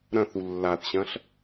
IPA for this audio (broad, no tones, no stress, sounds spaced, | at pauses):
ɾ ɐ̃ θ u lː a θ ɕ ɐ̃ ɬ